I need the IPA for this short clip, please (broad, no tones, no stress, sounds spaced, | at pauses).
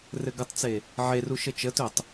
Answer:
r ɘ ɡ ə tˤ t͡s e | ʕ e r u ʃ ə t͡ʃ ə t ɵ tˤ